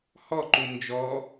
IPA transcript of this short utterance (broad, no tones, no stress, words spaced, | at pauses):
hɔǃu nd͡ʒɔ